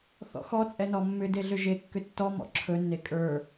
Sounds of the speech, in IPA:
θ ɔ̰ x ɔ t͡sʼ ɛ n ɔ mː ʏ d e ɮ ʏ ʒ e kː ʏ tː ɔ m ɔ̰ ǁʰ ɵ nː e kʼ ə˞

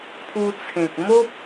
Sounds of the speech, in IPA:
pʰ u˧ t͡sʰ ẽ˨ k̚ m o˦ p̚

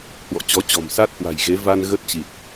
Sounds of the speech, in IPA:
h w ɔ̰˧˨ t͡ɕ ɔ˨˦ t͡ɕ ɔ̤˨˩ m s a˦˥ t̚ h w a̤˨˩ j ɣ e˨˦ v a˧ n ɣ ə˦˥ t̚ t͡ɕ i˨˩ t̚

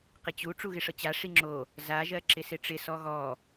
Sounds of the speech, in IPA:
q ɪ t͡ɕ u ʈ͡ʂ u ɣ ɪ ʂ ɤ t͡ɕ a ʂ i ŋ͡ǁ o | z a ʒ ɜ ǁ ɪ s ɪ ʈ͡ʂ ɪ s ɔ ɣ ɔ

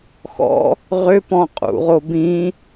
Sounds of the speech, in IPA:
x ɔ̰ | ʁ ʏ p ɔ̃ qʼ ṵ ʁ o b ĩ

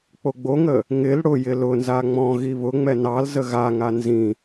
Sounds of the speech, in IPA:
k͡p o ɡ͡b o ŋ ə | ŋ ɪ l ɽ ʊ j ɪ l ʊ n z a ŋ͡m ɔ̃ ɣ i β ʊ ŋ͡m ɛ n ɑ l z ə ɣ a ŋ a n z ĩ

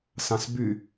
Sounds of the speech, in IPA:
s ɑ̃ s b y

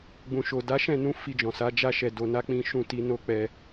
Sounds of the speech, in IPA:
ɡ͡b ũ˨ ʃ o˨ d a˨˦ ʃ ɛ̃˦˨ n ũ˧ f i˧ d͡ʒ ɔ̃˨ s a˨˦ d͡ʒ a˦ ʃ ɛ˧ d o˧ n a˦ k͡p ĩ˦ ʃ ũ˦˨ t i˧ n o˦ k͡p ɛ˧

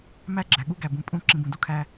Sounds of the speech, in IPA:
m æ˦˨ ɡ͡ǁ æ˨ ɠ u˦ ɡ æ˨ b ũ˨ pʼ ũ˦˨ ǁ ĩ˨ b ũ˨ d u˦ kʰ æ˦

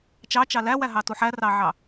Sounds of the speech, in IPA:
t͡ʃ ɑ t͡ʃ ɑ l æ w æ ɦ ɑ t u ħ æ r ɑ ʕ ɑ

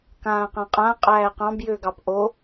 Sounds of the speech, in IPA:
k ãː q ã qʼ ã qʼ æː q ɑ̃ b j ʏː ɡ ɑ p ʔ o

